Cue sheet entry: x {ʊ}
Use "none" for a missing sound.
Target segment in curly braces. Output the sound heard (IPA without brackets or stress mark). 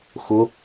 ʊ